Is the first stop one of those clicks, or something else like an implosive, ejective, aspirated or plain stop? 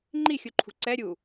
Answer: click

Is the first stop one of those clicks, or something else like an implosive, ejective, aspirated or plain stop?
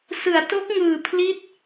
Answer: plain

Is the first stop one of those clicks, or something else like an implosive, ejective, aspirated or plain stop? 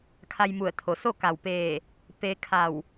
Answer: aspirated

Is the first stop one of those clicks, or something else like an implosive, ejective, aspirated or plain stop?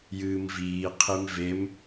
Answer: aspirated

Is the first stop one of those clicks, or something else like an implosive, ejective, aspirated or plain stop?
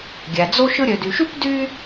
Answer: plain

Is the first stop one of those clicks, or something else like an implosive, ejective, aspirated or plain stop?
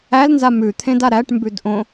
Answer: aspirated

